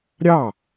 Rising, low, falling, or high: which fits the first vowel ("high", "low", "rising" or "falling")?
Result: falling